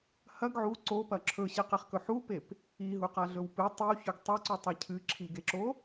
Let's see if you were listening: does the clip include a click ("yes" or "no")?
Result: yes